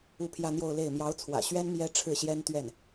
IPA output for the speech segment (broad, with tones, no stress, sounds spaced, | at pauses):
u˥˧ pʰ j ä˥˧ n̪ j o˥˧ ʊ̯ l e˥˩ ɪ̯ m j ɑ˧˥ ʊ̯ t͡sʰ w ä̰˨˩ ɕ ɥ ɛ˥ n m j ɛ˥ ʈ͡ʂʰ ɻ̩˥˩ ɕ j ɛ˥ n t̪ ɥ ɛ˥˩ n